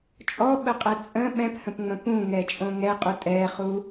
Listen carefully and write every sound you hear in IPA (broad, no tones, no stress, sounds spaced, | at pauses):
t͡ʃʼ ɔ ɓ ə qʼ ɛ t͡sʼ ə̃ ɓ ɛ̃ p h ə̃ p ŋ͡m ə̃ p ũ ŋ ɛ t͡ʃʼ õ ŋ ɛ qʼ u tʼ ɛ χ u